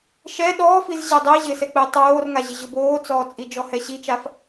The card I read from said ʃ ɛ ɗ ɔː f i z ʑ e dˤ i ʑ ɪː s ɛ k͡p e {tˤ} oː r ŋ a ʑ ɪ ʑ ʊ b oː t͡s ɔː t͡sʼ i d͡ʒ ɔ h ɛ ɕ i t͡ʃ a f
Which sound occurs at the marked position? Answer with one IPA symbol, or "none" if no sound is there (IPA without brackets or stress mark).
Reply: tˤ